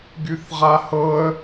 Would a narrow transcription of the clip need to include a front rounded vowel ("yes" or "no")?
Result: yes